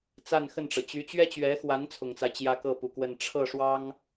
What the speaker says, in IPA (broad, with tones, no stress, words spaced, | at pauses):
t͡sa˥˧nxə˥˩nʈ͡ʂɤ˩ t͡ɕy˧˥t͡ɕɥɛ˥t͡ɕɥɛ˧˥xwa˧˥n t͡sʰʊ˨˩ŋt͡sa˦ɪ̯ t͡ɕjä˥kɤ˥˩pu˨˩kwə˥˧n ʈ͡ʂʰɤ˥˩ʂwɑ˥ŋ